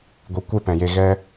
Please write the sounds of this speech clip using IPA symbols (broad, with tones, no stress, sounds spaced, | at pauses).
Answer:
ɡʷ i˨ kʷ e˦ p ɛ̃˨ j e˧ ɣ ɛ˦